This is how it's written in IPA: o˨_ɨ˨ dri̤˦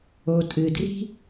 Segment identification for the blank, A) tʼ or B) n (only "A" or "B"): A